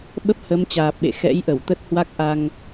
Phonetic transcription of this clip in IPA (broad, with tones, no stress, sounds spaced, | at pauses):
ɓ ə˦˥ p̚ h ə˨˦ m t͡ɕ aː˨˩ p̚ ɓ ḛ˧˨ x ɛ̰˧˥ j ʔ ə˧˩ w t̪ ə˦˥ t̚ h w a˦˥ k̚ ʔ a˧ ŋ